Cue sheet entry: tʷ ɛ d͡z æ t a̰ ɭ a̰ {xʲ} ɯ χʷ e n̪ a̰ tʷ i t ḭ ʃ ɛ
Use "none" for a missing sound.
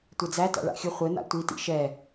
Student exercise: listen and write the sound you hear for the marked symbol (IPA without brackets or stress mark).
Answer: xʲ